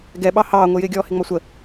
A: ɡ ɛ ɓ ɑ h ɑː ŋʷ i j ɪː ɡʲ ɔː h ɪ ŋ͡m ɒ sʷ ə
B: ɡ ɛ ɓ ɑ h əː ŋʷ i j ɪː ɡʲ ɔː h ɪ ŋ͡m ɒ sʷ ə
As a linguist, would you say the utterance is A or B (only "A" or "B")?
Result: A